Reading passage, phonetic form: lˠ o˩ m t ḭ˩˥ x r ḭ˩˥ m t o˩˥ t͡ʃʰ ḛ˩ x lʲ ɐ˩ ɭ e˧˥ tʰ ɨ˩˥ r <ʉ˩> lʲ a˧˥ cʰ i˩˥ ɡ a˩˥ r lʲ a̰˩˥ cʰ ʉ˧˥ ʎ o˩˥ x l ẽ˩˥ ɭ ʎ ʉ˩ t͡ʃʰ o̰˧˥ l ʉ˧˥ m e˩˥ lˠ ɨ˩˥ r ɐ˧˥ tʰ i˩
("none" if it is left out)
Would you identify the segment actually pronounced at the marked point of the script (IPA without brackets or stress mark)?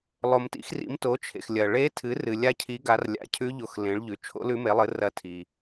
ɨ˩